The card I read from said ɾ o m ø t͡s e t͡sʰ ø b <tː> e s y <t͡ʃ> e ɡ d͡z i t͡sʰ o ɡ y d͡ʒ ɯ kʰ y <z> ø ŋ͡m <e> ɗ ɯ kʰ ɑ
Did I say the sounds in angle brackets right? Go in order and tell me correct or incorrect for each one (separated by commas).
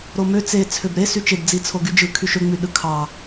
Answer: incorrect, correct, incorrect, incorrect